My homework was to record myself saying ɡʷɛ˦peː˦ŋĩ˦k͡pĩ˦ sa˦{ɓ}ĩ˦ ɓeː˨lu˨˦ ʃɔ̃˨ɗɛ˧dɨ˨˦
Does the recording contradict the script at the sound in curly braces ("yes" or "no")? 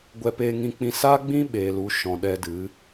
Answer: yes